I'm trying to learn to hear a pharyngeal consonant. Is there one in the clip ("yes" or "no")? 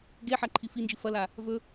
yes